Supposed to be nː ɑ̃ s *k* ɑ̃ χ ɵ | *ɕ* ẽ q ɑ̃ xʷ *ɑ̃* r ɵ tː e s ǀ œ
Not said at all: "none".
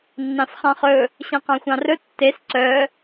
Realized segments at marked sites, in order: χ, ɕ, ɑ̃

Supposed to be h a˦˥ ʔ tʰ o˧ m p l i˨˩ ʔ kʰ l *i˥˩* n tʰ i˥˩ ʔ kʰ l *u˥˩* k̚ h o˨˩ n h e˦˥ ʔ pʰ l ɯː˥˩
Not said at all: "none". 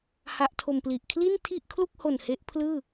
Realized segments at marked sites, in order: i˥˩, u˥˩

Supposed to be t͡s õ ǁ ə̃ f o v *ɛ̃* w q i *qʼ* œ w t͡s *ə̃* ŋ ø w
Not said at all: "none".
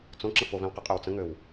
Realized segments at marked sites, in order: ɛ̃, qʼ, ə̃

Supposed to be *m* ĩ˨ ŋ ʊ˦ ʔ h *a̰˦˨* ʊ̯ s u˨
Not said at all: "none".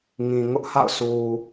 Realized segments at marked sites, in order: ŋ, a̰˦˨

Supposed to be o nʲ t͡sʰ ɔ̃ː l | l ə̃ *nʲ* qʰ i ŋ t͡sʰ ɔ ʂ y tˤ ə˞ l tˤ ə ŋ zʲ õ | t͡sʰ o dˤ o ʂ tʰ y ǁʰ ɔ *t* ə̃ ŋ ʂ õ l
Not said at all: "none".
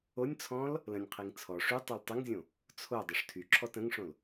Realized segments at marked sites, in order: nʲ, t

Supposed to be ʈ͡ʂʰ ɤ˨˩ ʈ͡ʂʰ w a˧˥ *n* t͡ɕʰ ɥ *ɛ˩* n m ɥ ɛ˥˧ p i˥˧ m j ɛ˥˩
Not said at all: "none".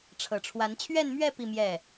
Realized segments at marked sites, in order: n, ɛ˥˧

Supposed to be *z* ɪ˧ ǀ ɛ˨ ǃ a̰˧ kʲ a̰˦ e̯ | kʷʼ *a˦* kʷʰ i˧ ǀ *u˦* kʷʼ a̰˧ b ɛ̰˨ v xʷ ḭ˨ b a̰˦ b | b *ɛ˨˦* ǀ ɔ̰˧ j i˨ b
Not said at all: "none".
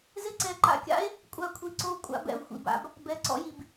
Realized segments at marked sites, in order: z, a˦˨, o˦, ɛ˨˦

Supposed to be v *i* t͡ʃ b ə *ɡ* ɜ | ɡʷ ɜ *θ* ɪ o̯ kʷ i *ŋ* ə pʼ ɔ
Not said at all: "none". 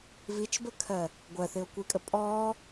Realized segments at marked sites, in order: i, kʰ, θ, kʼ

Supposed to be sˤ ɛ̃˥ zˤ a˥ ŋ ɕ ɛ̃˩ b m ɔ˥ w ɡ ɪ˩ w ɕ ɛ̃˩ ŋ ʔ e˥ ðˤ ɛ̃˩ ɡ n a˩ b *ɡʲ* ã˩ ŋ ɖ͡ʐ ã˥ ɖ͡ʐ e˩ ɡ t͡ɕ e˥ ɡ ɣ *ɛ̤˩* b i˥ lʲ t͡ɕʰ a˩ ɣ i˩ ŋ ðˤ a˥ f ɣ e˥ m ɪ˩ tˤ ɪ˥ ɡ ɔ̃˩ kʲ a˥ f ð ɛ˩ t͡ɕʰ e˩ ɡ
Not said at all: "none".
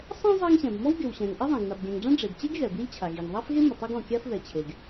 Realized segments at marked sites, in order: ɡʲ, ɛ˩

